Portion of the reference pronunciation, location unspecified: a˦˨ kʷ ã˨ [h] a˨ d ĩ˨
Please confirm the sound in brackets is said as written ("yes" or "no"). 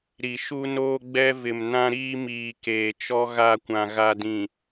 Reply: no